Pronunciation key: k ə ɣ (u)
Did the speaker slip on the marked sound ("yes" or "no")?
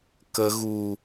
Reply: no